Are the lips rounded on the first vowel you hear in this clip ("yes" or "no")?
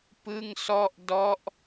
no